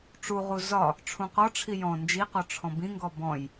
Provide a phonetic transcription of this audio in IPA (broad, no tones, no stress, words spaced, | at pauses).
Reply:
ʈ͡ʂuʁu zɒ | ʈ͡ʂʰũqɒʈ͡ʂʰi jɔ̃ nd͡ʒiqɔ ʈ͡ʂʰɔ̃bĩŋɡɔ bɔ̃j